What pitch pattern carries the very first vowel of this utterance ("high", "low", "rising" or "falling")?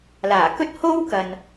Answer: low